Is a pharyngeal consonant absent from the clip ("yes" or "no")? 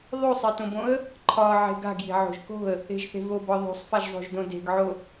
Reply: no